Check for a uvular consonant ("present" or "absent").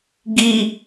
absent